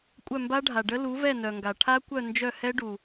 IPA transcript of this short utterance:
kʷʼ œ˦˨ m b a˦˥ ɖʱ a˨ ɖ ə˦˥ l u˨˦ v ɛ˦˨ n œ˨ ŋ ɡ a˨ ʈʰ a˦˥ kʷ œ˦˨ n d͡ʒ œ˦˨ h ɛ˦˥ ɖ u˨

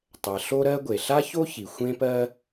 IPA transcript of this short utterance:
tˤ ɛ˩ ɬ o˥ ɾ ɜ˥ ɡʷ e˩ ɬ a˥ ç o˥ ç i˩ xʷ ẽ˥ p ɜ˥

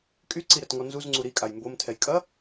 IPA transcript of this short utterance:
kʼ y ǀ i ɾ ɛ t ŋ ɔ n z u z ŋ͡ǀ u ɾ i kʼ a j m b o m tʰ ɛ j kʼ ɐ

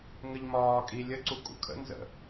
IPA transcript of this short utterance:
ŋ ə ʎ m ɒː kʼ i lʲ ə ǀ u kʼ ṵ kʰ ə̰ n z ə̰

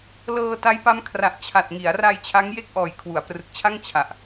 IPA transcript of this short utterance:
l ɤː˧ t a˦˥ j p a˦˥ m kʰ r a˨˩ ʔ t͡ɕʰ a˨˩ t̚ ŋ i˩˦ a̯ r a˧ j t͡ɕʰ a˦˥ ŋ j e˥˩ k̚ ʔ ɔː˨˩ j kʰ w u˩˦ a̯ p r ɯ˨˩ k̚ t͡ɕʰ a˥˩ ŋ t͡ɕʰ a˨˩ ʔ

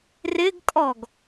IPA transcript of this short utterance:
r ɪ ɡ kʼ ɔ ɡ

